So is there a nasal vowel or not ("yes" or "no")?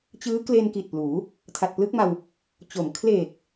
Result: no